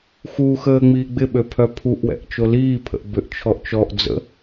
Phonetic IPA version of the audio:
x u x əː ŋ͡m iː ɡ͡b ɪ ɓ ø pʰ œ pʰ u ʔ w ɛ̰ ʔ t͡ʃ o l iː pʰ ə̰ ʔ b ʏ ʔ t͡ʃʰ ɔ ʔ t͡ʃ ɔ ʔ d͡z ə̰

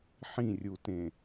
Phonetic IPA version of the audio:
ħ ĩ rʲ u t ẽ

